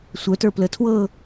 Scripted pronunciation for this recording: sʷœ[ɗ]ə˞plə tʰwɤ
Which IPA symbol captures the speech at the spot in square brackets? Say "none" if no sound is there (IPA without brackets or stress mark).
t